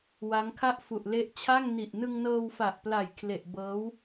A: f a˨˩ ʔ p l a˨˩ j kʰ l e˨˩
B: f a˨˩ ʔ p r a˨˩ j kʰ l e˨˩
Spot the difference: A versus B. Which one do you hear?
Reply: A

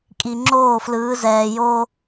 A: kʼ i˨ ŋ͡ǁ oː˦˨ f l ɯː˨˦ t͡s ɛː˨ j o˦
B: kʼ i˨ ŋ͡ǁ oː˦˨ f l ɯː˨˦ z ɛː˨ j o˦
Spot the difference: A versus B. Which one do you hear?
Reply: B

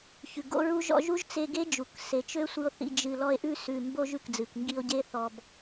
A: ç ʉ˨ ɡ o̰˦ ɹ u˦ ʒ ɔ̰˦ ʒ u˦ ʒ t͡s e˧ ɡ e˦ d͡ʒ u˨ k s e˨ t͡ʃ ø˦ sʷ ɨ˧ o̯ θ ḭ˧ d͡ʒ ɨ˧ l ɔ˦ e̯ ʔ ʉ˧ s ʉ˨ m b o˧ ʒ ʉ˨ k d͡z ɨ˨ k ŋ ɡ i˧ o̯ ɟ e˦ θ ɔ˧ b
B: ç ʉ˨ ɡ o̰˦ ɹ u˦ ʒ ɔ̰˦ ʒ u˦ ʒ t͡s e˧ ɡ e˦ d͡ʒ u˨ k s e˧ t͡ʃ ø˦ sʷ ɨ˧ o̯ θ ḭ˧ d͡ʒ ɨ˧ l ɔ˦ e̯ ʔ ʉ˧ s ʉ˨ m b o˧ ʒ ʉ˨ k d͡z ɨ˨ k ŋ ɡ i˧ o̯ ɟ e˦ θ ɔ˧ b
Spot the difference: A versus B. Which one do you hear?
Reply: A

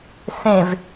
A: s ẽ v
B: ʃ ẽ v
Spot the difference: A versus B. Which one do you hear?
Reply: A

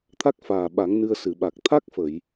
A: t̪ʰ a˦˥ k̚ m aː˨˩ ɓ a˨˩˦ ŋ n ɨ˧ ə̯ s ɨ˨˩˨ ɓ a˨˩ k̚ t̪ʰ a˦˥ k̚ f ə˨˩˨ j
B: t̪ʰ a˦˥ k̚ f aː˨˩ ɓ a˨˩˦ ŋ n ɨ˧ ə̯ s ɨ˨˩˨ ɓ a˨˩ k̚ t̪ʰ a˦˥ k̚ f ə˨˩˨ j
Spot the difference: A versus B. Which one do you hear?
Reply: B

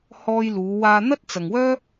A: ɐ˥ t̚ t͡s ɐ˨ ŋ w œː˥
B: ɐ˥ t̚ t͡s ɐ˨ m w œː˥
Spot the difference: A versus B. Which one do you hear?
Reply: A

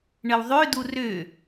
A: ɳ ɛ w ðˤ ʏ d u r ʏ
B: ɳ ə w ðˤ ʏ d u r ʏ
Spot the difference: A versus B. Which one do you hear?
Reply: B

